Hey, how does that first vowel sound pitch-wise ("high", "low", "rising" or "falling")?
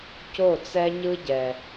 falling